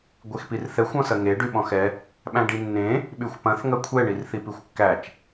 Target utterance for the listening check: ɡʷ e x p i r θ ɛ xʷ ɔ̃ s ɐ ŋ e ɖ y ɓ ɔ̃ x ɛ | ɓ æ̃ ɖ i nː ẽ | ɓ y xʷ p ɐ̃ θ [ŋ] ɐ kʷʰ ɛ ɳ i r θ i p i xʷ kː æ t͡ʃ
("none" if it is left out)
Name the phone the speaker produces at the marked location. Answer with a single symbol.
ŋ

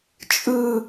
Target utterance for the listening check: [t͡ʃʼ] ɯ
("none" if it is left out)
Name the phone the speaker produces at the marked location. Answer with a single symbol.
t͡ʃʼ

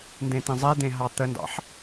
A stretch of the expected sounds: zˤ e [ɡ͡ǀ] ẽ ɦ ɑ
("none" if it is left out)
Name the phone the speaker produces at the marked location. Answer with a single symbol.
d̪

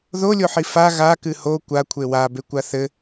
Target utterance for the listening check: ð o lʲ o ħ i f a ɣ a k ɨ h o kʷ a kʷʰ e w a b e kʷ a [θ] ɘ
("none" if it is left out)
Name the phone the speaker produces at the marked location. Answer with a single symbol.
θ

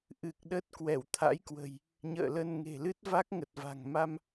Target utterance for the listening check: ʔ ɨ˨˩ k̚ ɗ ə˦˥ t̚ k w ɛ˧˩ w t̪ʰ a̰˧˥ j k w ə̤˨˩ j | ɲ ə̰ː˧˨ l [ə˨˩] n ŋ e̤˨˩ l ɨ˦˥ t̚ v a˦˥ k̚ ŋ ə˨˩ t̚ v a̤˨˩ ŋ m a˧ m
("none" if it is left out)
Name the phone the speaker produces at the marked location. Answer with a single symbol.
ə˧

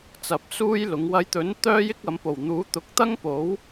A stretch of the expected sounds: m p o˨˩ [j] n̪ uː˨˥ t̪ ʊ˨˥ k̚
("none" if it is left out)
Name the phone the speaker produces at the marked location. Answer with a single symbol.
w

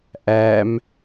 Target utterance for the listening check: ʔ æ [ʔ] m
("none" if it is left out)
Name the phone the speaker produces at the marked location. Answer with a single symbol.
none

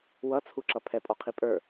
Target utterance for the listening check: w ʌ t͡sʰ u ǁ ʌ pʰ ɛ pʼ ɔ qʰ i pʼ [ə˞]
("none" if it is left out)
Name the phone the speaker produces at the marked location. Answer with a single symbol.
ə˞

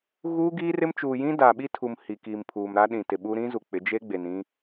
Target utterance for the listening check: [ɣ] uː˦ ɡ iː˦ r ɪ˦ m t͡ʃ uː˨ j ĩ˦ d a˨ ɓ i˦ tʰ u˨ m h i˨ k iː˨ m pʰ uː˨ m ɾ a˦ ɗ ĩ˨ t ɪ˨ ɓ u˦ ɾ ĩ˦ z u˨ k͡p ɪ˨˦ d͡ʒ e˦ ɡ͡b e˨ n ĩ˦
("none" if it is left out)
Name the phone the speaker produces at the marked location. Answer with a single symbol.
ɣ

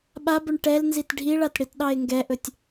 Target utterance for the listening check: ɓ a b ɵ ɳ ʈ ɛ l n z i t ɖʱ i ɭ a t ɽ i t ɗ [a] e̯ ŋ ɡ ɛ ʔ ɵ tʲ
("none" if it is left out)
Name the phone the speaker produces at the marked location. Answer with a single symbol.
ɑ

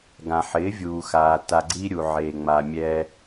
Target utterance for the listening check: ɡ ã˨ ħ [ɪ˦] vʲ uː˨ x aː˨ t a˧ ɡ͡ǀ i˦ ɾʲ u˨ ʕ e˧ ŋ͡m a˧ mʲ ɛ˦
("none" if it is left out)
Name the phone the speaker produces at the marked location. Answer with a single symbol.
ɪ˨˦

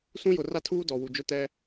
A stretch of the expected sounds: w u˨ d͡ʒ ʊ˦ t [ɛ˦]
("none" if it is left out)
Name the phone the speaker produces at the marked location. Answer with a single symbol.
ɛ˦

